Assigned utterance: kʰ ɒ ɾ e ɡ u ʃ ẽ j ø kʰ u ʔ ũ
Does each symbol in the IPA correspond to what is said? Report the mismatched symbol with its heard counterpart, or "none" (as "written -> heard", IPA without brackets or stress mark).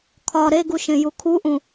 ø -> u